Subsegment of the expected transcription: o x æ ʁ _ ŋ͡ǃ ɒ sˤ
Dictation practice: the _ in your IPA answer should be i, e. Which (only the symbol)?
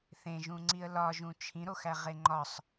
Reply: e